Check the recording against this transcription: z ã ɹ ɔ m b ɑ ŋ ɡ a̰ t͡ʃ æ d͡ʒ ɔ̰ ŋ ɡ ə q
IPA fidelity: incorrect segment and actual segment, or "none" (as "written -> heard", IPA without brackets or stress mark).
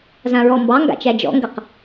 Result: none